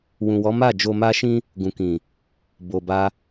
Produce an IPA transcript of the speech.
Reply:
wũ˨wɔ˨˦ ma˦˨d͡ʒo˧ ma˦ʃĩ˦ | ɡũ˨kĩ˨ | bo˨ba˧

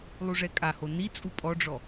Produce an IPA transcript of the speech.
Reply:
lˠuʐɛkʼaho ni t͡sʼupʼɔɖ͡ʐɔ

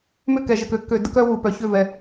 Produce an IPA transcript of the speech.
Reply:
mʏ˦˨kɛ˨ʒə˨k ø˧kːø˧ də˦k œ˦ wu˨pœ˨çʏ˦˨vɛ˨

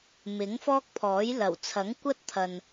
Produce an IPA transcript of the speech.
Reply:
mɪ˨˥ŋfɔː˥k̚pʰɔː˨˥j lɐ˨˩wt͡sʰɐ˨˥ŋkʷɐ˥t̚t̪ʰɐ˨n

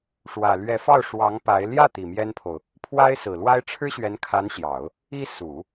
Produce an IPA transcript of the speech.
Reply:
ʂwä˨˩ lɥɛ˧˥fɑ˥˩ʊ̯ ʂwɑ˧˥ŋ pa˧˥ɪ̯ ljä˥˩ t̪i˨˩mjɛ˥npʰo˨ʊ̯ | pʰwa˥ɪ̯sɹ̩˨˩lwa˥ɪ̯ ʈ͡ʂʰɻ̩˥ɕɥɛ˧˥nkʰa˧˥nɕjɑ˨˩˦ʊ̯ | i˥ su˨˩˦

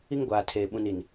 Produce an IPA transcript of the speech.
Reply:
i˦ŋɡʷaː˨tʰeː˨ ɓũ˨n i˨n

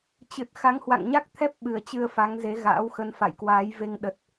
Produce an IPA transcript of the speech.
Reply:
t͡ɕɨ˨˩t̚ xa˨˦ŋhwa̰˧˨ŋɲa˦˥k̚ t̪ʰɛ˦˥p̚ɓɨ˨˩ə̯ t͡ɕɨ˧ə̯fa˨˦ŋ ze˨˦ɣa̰ː˧˥wxə˧n fa̰˧˨jkwaː˨˦jve˧ŋ ɗə˨˩t̚

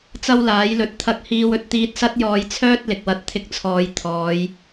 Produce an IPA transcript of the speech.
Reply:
t͡sɐ˥wlaː˨˥jlɵ˧t̚ t̪ʰɐ˧k̚hiː˧w ɵ˧t̚t̪iː˧t̚sɐ˥t̚jɔː˧j t͡sʰœː˥t̚lɪ˨k̚wɐ˨˥t̚ t̪ʰɪ˧k̚t͡sʰɔː˨j t̪ʰɔː˨˧j

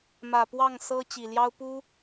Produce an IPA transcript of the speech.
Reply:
mä˨˩pwɑ˥˨ŋsɤ˦ t͡ɕi˨˩ljɑ˦ʊ̯pu˦

